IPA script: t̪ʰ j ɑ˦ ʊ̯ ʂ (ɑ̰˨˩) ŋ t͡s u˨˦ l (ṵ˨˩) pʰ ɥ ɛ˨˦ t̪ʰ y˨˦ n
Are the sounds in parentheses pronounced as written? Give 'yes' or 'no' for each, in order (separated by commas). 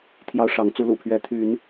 no, yes